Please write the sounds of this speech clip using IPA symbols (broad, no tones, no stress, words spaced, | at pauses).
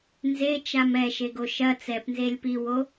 nzet͡ʃam ɛʃeɡo ʃɐ t͡sɛpnzelʲ piwo